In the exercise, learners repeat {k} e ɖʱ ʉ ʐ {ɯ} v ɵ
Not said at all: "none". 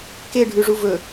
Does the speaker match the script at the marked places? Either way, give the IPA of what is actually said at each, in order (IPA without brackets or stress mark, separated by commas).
k, u